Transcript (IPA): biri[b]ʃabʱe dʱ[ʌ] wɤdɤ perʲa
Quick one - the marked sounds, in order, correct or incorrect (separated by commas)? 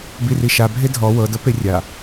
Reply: incorrect, incorrect